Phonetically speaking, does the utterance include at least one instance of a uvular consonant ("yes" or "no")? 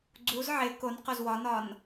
yes